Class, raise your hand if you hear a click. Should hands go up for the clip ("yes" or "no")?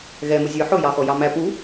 no